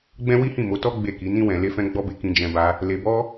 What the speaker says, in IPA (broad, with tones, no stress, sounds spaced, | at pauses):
ɡ͡b ɛ̃˦ w i˦ h ĩ˦˨ m o˨˦ t ɔ˦ ɡ͡b e˦˨ k i˨˦ n ĩ˦ w ɛ̃˧ l e˦ f ɛ̃˦ ɡ͡b ɔ˦ b e˧ k ĩ˧ d͡ʒ ɛ̃˧ b a˧ | l e˧ b ɔ˦